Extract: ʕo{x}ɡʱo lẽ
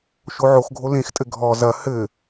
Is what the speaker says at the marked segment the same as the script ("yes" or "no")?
yes